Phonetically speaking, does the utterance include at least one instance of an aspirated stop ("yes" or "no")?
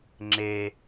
no